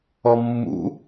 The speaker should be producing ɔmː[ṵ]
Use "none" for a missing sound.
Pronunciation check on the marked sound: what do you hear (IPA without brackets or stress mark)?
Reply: ṵ